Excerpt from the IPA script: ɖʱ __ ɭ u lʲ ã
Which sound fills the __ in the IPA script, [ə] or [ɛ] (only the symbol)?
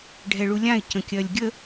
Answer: ɛ